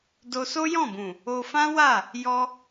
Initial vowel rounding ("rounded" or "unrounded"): rounded